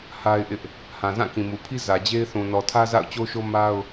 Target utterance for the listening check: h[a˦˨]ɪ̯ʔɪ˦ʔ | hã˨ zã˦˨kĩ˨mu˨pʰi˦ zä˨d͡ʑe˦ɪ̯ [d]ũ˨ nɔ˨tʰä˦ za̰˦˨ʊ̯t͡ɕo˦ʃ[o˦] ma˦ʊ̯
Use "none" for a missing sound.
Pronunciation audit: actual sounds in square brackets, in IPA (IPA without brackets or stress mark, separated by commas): a˦, θ, o˦